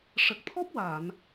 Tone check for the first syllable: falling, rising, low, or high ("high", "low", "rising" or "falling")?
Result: low